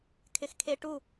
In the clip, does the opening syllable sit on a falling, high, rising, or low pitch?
low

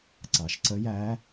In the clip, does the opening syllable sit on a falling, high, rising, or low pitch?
low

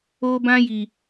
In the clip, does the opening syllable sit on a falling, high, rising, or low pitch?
high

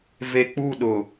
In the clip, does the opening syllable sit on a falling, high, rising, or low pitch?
low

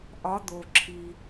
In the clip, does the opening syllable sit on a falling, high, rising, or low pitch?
rising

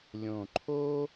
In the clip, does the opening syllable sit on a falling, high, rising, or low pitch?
low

